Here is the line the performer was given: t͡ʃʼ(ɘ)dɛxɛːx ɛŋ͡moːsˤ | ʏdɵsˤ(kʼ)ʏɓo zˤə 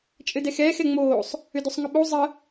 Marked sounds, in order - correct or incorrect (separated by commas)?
correct, incorrect